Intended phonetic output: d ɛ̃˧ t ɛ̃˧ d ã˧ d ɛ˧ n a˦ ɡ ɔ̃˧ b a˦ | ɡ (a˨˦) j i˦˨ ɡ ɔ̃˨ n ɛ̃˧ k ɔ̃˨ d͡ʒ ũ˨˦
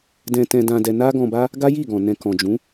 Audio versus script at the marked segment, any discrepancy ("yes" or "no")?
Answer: yes